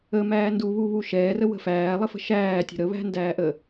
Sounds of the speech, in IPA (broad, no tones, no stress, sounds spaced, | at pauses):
ə m æː n d u β u β u ʃ ɛː r ə w ə̤ f æː lˠ ə f ə̤ ʃ æː tʲ ə̤ ɾ ə β æ̤ n d æː ʔ ə